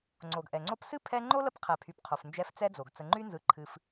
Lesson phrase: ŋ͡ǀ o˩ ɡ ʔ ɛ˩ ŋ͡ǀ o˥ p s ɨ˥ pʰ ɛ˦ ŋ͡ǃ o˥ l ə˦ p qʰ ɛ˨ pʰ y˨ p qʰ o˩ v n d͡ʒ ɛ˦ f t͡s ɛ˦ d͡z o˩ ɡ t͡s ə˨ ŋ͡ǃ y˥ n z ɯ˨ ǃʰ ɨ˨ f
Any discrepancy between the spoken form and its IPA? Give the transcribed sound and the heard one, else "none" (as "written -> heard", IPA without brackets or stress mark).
v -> f